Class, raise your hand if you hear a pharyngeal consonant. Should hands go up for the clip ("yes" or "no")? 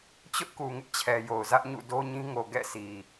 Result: no